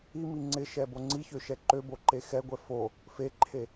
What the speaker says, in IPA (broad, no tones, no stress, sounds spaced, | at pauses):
i m i ŋ͡ǀ ɪ ʃ ɛ b o ŋ͡ǀ i ç ø ʃ ɛ ǃ ø b o ǃ e x ɛ ɡʷ ɛ f o | f e ǃʰ e